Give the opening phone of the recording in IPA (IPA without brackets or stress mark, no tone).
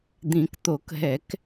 d̪